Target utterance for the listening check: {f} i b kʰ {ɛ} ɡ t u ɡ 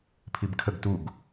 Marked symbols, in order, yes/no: no, no

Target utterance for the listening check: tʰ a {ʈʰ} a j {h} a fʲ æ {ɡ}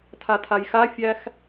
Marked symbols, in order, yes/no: no, no, no

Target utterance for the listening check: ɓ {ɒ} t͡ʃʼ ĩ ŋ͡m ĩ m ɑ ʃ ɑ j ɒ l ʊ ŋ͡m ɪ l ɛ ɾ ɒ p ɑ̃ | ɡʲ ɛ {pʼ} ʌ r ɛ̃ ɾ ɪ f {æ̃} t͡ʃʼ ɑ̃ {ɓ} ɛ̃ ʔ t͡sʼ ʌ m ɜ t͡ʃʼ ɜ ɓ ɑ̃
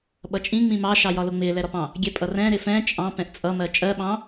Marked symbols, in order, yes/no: no, yes, no, no

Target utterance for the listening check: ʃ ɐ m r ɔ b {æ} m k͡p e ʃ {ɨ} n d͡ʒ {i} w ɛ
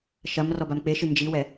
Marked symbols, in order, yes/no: no, yes, yes

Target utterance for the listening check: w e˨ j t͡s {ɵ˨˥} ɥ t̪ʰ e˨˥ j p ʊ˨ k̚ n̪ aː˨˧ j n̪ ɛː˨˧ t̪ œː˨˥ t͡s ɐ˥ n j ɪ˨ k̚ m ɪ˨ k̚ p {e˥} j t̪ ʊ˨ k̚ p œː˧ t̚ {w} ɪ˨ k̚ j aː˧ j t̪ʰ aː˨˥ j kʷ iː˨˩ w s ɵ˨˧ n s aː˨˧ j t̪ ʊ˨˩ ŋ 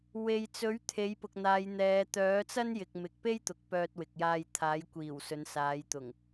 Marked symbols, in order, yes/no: yes, yes, yes

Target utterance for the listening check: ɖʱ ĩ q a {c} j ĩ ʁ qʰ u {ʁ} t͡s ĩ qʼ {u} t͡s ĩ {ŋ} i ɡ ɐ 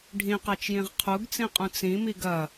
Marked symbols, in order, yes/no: no, no, no, no

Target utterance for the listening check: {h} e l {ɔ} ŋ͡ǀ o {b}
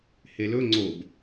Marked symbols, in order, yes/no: yes, no, yes

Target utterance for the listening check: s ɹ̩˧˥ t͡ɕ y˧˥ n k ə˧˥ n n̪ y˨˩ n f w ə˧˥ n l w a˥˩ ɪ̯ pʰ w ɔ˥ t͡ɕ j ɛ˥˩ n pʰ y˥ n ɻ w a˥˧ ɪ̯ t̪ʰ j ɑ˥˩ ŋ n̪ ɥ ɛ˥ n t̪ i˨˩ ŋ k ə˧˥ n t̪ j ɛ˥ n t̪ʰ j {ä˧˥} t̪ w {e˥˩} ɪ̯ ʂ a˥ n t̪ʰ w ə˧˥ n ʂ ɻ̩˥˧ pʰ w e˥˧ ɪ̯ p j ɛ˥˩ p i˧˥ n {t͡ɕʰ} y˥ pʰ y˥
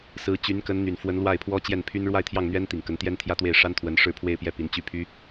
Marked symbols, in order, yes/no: no, yes, no

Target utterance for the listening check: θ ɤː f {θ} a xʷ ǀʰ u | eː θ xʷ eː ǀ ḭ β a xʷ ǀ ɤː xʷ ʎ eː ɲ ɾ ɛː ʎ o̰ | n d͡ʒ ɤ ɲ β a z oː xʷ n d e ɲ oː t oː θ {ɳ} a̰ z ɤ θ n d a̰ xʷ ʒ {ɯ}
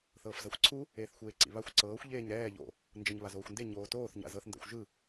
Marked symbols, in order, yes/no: no, no, yes

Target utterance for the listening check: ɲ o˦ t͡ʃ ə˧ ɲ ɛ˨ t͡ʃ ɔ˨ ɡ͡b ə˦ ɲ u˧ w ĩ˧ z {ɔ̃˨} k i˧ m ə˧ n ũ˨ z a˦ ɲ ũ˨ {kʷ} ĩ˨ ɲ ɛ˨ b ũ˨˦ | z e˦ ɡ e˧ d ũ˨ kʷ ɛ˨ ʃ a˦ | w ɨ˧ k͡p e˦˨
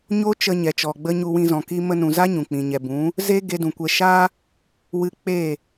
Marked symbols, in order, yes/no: yes, no

